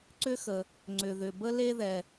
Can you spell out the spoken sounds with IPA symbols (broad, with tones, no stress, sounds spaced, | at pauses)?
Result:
ǀ ʏ˥ x ə˩ | ŋ͡ǀ ʏ˩ ð ʏ˩ b ə˥ l e˥ ð ɛ˩